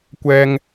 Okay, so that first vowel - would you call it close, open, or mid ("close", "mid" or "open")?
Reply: mid